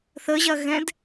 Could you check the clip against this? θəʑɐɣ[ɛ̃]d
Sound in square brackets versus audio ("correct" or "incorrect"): correct